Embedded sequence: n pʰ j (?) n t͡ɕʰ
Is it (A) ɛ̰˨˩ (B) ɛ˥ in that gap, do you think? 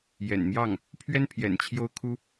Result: A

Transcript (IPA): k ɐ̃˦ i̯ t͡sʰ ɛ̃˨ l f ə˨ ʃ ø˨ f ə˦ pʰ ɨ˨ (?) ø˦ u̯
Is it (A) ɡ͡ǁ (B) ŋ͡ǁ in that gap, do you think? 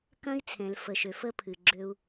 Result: A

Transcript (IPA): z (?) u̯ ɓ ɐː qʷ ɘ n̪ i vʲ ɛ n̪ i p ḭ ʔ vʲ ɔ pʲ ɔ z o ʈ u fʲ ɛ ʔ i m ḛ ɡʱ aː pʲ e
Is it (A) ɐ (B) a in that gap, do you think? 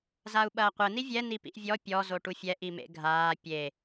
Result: B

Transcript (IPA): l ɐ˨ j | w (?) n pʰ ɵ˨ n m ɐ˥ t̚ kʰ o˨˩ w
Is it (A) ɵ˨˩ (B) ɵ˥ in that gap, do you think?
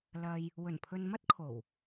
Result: A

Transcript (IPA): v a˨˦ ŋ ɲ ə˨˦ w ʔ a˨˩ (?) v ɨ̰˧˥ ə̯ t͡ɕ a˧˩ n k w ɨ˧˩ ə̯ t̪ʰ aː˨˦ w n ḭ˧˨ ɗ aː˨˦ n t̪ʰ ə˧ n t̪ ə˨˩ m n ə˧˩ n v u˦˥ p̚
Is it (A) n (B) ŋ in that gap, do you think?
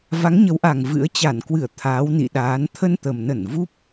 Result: B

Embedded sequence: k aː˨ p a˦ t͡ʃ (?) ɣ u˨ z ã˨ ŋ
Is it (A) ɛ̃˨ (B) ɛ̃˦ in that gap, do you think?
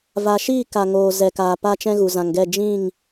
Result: B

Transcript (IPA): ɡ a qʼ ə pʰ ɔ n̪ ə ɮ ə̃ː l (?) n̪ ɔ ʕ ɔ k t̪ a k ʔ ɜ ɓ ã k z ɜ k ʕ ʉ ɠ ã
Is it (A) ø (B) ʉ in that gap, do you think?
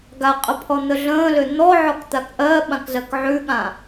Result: A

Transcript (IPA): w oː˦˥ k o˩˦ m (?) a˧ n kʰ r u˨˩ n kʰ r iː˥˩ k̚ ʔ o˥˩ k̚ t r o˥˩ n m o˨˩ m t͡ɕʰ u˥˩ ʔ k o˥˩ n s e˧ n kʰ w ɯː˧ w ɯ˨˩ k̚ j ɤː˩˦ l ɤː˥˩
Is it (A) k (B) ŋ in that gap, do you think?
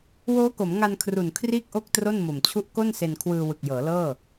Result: B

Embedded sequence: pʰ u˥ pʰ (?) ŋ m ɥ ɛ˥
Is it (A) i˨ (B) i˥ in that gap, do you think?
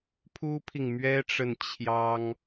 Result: A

